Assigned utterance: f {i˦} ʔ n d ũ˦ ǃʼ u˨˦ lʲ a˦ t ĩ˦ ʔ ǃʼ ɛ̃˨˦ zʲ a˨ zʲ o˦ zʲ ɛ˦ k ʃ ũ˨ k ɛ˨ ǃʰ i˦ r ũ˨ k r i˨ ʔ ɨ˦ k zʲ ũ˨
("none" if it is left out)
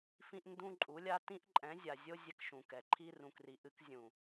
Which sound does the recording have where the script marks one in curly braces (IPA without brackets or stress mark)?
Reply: ĩ˦